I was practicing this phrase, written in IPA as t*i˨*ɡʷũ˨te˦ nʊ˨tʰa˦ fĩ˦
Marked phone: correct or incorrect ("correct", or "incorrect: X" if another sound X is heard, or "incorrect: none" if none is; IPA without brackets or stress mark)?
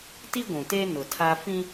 incorrect: i˦